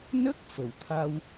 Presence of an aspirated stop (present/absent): present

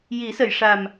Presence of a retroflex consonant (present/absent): present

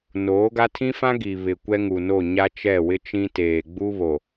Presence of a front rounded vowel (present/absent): absent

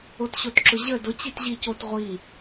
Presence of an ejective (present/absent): absent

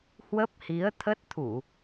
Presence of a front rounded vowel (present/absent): absent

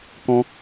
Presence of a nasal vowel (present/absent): present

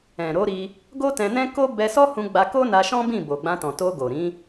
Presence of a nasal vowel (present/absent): present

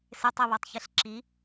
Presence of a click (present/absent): present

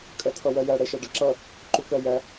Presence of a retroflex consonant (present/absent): present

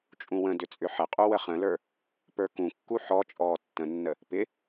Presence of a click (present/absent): absent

